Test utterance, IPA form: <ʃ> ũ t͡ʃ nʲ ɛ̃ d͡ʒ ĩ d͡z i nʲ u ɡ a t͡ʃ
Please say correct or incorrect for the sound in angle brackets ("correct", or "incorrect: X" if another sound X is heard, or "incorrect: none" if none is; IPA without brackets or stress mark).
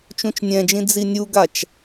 incorrect: t͡ʃ